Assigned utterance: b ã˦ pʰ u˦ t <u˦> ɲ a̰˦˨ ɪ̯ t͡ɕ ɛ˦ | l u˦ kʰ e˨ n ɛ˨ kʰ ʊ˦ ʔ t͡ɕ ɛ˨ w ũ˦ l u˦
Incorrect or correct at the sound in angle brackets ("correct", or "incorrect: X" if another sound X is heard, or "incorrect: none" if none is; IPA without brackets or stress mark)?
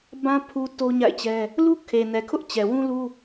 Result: incorrect: o˦